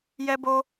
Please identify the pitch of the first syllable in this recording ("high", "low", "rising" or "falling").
high